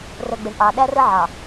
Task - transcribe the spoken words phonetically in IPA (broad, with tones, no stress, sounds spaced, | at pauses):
r ə˨ ɡ͡b ɪ˨ ɳ ʔ ɑ˨ ɗ æ˦ r ə˦ ʕ ɑ˨